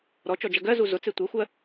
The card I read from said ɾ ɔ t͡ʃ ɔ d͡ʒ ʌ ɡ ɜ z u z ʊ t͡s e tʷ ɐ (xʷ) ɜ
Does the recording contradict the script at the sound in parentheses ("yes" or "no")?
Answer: no